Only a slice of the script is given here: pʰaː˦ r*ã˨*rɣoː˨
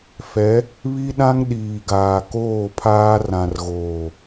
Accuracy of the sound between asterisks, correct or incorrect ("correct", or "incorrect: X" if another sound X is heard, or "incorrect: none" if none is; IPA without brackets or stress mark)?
correct